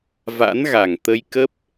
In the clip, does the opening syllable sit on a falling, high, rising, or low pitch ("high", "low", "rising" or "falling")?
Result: rising